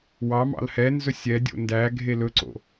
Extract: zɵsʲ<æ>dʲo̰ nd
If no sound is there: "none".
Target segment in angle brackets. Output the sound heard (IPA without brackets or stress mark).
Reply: ɛ